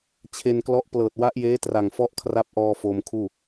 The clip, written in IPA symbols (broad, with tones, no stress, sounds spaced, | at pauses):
t͡ɕʰ e˧ n k l ɔ˦˥ ʔ p l ɤː˨˩ t̚ w a˦˥ ʔ j eː˦˥ t r a˨˩ ŋ f ɔ˦˥ ʔ kʰ r a˦˥ p̚ ʔ ɔː˧ f oː˧ m kʰ uː˥˩